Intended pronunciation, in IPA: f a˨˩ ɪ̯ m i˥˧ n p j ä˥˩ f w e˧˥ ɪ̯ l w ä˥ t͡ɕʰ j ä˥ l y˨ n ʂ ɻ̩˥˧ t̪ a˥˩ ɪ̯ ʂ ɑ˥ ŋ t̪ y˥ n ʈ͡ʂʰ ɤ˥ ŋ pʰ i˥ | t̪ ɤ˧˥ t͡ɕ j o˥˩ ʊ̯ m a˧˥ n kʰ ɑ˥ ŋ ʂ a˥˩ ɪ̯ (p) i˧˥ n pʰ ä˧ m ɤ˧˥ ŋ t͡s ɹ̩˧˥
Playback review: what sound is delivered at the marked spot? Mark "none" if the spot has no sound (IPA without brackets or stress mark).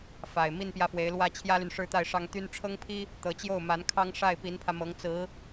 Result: p